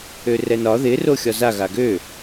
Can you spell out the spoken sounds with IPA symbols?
ø r ɛ n ɒ ð ɪ r o xʲ ɒ z a ɣ a ɡ ø

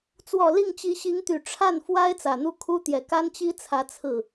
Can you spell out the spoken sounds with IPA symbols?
t͡s w ɔ˨˩ l i˥˩ ŋ t͡ɕ i˧˥ ɕ i˧˥ ŋ t̪ y˨˩ ʈ͡ʂʰ a˥˩ n f w a˥ ɪ̯ t͡s ä˨˩ n̪ u˥ kʰ u˥ t̪ j ɛ˨˩ k a˥ n t͡ɕ i˥ t͡sʰ ä˧˥ t͡sʰ ɹ̩˥˩

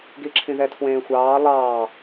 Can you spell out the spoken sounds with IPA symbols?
ɡ i ǁʰ ĩ ð ɛ tʰ w ẽː xʷ ɑː lˠ ɑː

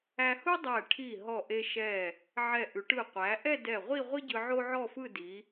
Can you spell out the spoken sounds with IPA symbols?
æ˧ h u˥ dˤ æ˧˩ ʈʰ i˧˩ ɦ ɔ˧˩ ʔ e˧ ʃ ɛ˧˩ | ʕ ɛ˧˩ ʔ ʉ˩˧ ʈ ɯ˧˩ qʷ æ˩˧ ʔ ɛ˥˧ d ɛ˧˩ ʁʷ i˥˧ ʁʷ i˥ ɟ ɯ˧ ʕ o˥ ʕ ɔ˥˧ f ɯ˥˧ d i˩˧

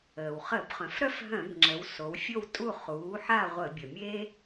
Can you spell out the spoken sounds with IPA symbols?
əː˩ w χ ə˧˩˧ b χ œ̃˩˧ f ɾ œ˥˨ f ɦ œ̃˧˩˧ b ŋ͡ǁ ə˩˧ w s o˩˧ w fʲ o˥˨ w tʼ u˥˨ χ uː˩˥ ħ a˥˨ ʁʷ ə˧˩˧ bʲ ə˩ mʲ eː˥

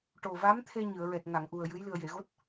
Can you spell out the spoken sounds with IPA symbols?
ʈ o˨˩ v a˧˥ m t̪ʰ e˧ ɲ ɨ˨˩˨ ə̯ ɹ ɛ˨˩ t̚ ŋ a˨˩˨ ŋ ʔ u˨˩ ə̯ j ɨ˧˥ j l ɨ˨˩ ə̯ j e˨˩˨ ɣ o˦˥ t̚

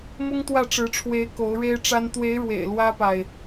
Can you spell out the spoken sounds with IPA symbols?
m ʊ˥ ŋ t̪ w ä˥˩ ʈ͡ʂ ɻ̩˧˥ ʈ͡ʂʰ w e˧˥ ɪ̯ k o˧˥ ʊ̯ ɻ e˥ ɪ̯ ʈ͡ʂ a˥ n t̪ w e˧˥ ɪ̯ ɻ w ḛ˨˩ ɪ̯ l w ä˥ p a˨ ɪ̯

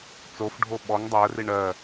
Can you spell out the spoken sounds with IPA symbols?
t͡s o f ɖʱ o ɓ ɔ ŋ dˤ ɜ r i ɳ ɜ

